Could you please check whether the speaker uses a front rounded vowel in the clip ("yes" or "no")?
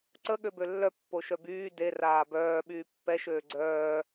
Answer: yes